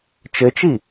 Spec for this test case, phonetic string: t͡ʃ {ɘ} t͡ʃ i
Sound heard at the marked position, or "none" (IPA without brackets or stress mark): ɘ